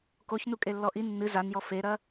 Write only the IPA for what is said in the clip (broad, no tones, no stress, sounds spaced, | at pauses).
k o ç n u kʼ e lː ɔ ʔ i nː ɨ z a n j ɔ f e ɾ ɐ